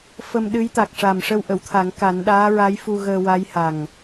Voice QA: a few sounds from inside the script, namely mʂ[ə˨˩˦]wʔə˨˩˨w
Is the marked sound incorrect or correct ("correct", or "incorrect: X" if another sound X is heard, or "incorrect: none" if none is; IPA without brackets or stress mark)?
incorrect: ə˧